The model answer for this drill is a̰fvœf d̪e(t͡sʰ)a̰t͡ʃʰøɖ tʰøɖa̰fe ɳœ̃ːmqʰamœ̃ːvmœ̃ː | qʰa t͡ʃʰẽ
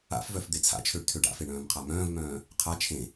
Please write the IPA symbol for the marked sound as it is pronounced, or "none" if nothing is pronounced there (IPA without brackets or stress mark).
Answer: t͡sʰ